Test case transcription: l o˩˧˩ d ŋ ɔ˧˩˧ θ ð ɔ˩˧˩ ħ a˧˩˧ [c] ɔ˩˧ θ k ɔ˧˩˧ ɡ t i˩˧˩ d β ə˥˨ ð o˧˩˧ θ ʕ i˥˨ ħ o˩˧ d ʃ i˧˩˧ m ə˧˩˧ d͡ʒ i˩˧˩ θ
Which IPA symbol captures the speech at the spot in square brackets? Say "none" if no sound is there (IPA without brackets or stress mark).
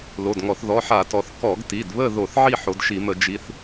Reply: t